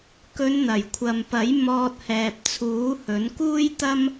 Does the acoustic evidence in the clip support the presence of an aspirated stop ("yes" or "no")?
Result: yes